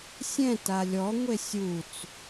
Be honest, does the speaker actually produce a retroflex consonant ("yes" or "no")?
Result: no